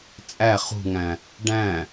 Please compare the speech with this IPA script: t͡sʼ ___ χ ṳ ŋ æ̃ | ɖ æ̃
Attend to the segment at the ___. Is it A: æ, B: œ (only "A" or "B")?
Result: A